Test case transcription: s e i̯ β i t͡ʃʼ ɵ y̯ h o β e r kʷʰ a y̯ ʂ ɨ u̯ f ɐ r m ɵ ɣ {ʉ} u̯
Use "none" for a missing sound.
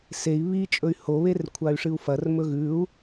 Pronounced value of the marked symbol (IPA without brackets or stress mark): ʉ